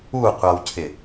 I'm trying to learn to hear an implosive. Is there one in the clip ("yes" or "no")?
no